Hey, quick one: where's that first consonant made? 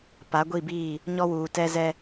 lips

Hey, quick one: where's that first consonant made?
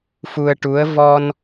lips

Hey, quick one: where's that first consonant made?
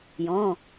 palate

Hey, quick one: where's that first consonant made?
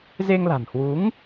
tongue tip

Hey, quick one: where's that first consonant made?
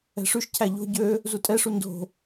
retroflex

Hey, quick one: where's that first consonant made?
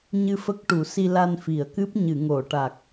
palate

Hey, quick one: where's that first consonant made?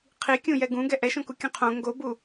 uvula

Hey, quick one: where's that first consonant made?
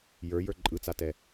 palate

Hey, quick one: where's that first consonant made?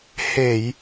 throat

